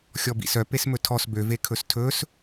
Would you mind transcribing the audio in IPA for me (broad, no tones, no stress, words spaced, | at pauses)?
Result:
xʲɔbḭsœ pesmɵtʰɔs bø vekʰɵstʰɵs